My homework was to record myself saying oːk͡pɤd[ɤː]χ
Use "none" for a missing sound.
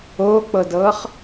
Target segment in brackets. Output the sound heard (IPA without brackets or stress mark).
ɤː